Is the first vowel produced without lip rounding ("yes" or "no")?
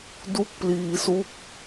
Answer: no